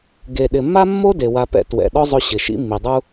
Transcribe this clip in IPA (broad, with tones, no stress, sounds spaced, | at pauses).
ɡ e˨ ɗ ɪ˨ mː a˦ mː o˦ d e˨ w a˧ p ɛ̰˧ t w ɛ̰˨ ɗ ɔ˦ zˤ ʊ˧ ɕ ɪ˨ ʃ ḭ˦ mː i˨ dˤ u˦